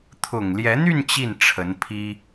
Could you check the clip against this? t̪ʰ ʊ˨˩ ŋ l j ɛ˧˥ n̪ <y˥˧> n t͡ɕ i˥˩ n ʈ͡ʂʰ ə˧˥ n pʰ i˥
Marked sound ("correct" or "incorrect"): correct